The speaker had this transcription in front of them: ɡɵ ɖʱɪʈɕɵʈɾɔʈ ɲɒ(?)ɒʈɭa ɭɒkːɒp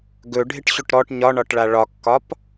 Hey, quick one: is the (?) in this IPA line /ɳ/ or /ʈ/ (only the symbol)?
ɳ